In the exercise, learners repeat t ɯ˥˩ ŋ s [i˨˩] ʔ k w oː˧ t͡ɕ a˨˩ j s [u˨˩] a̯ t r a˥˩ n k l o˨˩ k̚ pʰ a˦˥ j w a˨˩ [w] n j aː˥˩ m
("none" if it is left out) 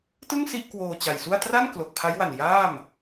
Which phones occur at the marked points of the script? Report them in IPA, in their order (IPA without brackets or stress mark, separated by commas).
i˥˩, u˥˩, none